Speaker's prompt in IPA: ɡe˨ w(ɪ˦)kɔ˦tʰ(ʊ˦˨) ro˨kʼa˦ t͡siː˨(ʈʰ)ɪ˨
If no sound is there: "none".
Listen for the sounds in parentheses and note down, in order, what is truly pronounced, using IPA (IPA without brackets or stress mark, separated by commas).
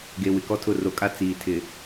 ɪ˨, ʊ˦˨, tʰ